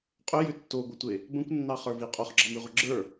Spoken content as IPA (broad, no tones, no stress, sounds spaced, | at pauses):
qʼ ʏ j ʏ tː o ɡʷ ə tʷ e | b ə̃ kʷ nː ɑ χ ə˞ v i qʼ o χ ɡ͡ǁ ɑ m i ʁʷ ə ɡ͡ǁ ə˞